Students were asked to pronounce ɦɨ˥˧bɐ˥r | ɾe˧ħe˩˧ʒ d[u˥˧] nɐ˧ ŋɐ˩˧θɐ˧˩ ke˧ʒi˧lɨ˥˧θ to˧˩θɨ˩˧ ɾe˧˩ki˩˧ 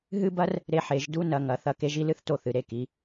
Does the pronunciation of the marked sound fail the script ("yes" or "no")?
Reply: no